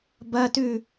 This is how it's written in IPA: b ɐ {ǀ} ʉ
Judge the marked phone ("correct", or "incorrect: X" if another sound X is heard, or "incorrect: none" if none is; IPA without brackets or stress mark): incorrect: t